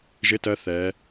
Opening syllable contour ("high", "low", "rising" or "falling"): rising